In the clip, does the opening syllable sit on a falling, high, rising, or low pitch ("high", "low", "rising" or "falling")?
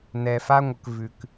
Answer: low